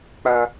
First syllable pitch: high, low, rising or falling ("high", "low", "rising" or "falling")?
high